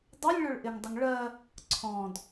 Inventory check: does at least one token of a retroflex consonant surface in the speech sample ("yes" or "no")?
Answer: yes